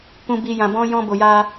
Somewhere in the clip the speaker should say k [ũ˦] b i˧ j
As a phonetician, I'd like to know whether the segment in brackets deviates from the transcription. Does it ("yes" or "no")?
yes